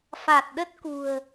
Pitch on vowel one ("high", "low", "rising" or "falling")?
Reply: low